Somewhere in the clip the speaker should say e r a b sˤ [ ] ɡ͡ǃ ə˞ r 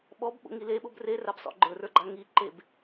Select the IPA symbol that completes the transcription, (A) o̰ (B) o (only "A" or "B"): A